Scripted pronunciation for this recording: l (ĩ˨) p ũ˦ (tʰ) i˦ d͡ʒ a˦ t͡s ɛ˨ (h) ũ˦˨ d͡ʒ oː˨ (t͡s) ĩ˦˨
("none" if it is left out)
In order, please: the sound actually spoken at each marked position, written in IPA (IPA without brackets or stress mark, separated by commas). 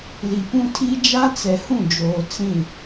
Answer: i˨, tʰ, h, t͡s